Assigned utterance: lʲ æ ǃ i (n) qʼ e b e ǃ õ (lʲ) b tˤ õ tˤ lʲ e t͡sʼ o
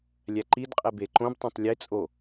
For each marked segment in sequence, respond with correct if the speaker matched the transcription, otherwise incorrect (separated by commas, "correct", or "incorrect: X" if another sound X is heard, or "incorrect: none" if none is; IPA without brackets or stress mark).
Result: incorrect: d, incorrect: none